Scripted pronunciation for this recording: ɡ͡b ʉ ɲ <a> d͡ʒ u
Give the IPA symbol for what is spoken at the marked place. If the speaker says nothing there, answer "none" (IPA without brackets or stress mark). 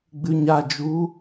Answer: a